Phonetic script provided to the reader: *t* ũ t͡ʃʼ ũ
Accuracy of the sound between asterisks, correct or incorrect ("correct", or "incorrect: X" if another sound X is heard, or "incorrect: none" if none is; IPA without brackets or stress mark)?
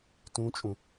correct